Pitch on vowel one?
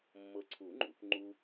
low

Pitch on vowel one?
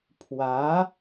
rising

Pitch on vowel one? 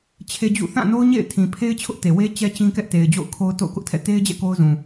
high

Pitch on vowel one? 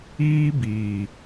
high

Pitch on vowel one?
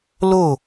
falling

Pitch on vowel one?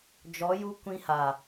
rising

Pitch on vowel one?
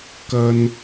high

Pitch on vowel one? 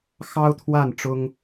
high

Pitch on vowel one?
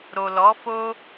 low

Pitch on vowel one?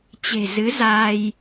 low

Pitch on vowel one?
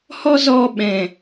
high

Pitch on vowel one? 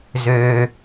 low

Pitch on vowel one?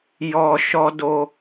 low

